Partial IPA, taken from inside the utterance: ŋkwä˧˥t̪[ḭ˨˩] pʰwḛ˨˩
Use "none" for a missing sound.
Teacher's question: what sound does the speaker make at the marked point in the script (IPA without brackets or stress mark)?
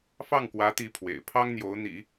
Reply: i˧˥